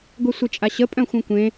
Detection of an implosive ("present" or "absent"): absent